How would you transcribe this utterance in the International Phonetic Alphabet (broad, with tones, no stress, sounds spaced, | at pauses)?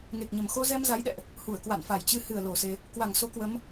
ŋ e˨˩ k̚ ɲ ə˨˩ m x o˧ z ɛ˧ m z a˨˦ j ɗ ɛ̰˧˨ ʔ | h u˧˩ ə̯ k w a̰˧˨ n f a˧˩ j t͡ɕ ɨ˧ h ɨ˧˩ ə̯ l o˨˩ s e˧ | k w a˧˩ ŋ s o˨˦ k w ə˨˦ m